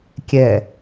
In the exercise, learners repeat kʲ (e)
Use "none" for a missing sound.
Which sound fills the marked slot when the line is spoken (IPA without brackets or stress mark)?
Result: ɛ